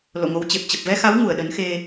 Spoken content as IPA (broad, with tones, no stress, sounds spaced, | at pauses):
l o̰˧˨ ŋ o˨˦ w t͡ɕ e˨˩ p̚ t͡ɕ ə˨˩ p̚ v ɛ˧ x a˨˦ w ŋ u˧˩ ə̯ ɗ ə˨˦ n x e˧